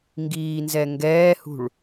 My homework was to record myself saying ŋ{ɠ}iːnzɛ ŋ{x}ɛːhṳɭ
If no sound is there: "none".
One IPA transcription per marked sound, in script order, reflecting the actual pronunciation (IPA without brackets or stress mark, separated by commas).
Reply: ɡ, ɡ